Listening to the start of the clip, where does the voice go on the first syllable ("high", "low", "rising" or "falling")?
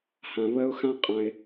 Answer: low